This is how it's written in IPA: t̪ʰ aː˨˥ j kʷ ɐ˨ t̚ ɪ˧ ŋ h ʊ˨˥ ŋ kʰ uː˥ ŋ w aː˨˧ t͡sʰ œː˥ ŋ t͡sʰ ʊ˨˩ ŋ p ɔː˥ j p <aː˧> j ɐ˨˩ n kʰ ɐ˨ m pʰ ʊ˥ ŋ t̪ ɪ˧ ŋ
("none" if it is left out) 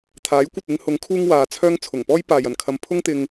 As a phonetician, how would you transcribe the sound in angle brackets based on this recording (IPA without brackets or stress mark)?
aː˨